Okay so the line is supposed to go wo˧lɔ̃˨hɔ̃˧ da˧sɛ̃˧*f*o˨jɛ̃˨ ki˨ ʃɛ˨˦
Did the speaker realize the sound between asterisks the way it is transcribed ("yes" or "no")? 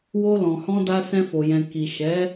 yes